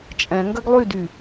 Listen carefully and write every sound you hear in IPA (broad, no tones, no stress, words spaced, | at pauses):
t͡ʃʼɛ̃ ŋɡɐɡlˠydy